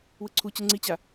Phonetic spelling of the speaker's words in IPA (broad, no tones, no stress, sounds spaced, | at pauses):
w ɯ ǀʰ u t͡ɕ ɯ ŋ͡ǀ i t͡ɕ a